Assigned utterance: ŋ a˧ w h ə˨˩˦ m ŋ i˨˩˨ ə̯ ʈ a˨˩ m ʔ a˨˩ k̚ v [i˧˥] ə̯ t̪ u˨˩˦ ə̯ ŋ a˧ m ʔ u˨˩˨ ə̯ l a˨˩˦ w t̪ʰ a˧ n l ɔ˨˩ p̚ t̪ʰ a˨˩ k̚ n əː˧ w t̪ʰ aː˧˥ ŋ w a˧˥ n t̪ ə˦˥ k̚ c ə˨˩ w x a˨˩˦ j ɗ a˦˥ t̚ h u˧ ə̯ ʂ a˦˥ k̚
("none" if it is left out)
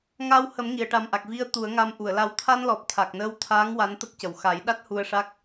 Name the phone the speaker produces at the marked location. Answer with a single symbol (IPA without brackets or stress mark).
i˧